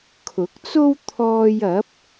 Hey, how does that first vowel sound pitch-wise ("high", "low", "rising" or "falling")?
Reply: rising